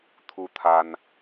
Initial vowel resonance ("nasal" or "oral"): oral